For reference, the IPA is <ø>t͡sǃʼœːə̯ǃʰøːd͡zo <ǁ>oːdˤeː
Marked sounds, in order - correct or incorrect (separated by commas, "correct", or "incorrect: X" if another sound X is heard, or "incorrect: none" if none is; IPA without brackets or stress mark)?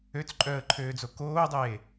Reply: correct, incorrect: k